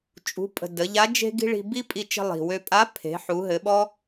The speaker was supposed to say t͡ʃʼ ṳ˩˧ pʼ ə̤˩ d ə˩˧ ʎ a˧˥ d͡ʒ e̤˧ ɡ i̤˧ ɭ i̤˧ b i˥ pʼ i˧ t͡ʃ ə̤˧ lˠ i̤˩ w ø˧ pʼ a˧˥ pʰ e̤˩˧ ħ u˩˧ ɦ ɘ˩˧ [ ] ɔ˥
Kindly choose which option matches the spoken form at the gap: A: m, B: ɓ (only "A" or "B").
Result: B